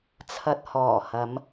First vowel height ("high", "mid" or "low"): low